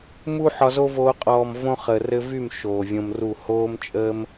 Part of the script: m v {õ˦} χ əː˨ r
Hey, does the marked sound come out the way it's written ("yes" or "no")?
yes